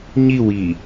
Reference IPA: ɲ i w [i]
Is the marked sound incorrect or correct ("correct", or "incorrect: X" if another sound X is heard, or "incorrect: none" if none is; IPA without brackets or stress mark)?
correct